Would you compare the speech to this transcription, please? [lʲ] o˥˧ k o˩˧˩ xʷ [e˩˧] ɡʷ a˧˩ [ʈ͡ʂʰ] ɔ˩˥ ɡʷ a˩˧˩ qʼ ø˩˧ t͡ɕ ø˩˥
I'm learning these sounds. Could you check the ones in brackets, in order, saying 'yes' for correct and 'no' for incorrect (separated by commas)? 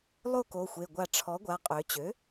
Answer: no, no, yes